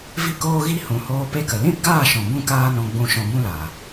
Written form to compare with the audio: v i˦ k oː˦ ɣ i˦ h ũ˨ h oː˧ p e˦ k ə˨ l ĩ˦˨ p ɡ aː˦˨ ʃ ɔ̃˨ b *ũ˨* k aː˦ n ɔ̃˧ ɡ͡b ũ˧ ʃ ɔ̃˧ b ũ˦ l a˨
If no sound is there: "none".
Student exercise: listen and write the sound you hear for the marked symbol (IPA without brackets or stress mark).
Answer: ũ˦